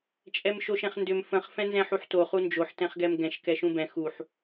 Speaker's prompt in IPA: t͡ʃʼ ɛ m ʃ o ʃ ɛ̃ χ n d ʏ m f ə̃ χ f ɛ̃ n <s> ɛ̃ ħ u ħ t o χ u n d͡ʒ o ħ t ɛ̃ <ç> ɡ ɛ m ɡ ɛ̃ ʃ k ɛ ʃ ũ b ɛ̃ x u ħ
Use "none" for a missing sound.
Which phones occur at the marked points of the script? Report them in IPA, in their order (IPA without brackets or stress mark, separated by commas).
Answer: z, χ